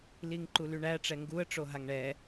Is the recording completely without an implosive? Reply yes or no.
yes